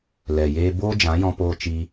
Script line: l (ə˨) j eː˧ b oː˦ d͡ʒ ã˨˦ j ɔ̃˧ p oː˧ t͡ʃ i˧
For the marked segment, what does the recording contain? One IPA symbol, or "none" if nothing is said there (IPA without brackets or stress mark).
ɛ˨